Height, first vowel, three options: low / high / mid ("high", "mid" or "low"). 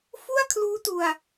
high